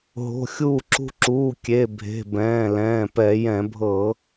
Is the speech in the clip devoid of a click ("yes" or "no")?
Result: no